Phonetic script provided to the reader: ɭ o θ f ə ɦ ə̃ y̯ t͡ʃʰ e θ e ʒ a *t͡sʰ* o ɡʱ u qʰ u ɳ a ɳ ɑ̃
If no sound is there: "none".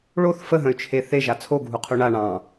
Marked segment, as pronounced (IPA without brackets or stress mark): t͡sʰ